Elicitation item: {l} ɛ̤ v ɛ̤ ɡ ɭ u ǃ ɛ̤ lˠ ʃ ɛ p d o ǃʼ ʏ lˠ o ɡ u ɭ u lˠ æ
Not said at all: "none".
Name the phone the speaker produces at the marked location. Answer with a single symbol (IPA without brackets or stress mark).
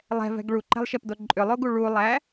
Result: lˠ